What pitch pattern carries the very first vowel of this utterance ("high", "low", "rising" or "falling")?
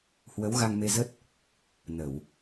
rising